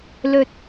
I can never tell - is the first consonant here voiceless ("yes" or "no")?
no